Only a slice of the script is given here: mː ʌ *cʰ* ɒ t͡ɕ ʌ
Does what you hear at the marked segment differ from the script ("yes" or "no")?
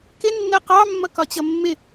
yes